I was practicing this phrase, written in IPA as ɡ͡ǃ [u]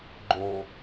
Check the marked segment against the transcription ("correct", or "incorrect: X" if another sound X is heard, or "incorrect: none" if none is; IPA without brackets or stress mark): incorrect: o